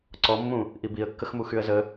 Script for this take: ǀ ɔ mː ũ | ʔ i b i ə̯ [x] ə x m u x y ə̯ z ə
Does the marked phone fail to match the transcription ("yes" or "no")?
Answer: yes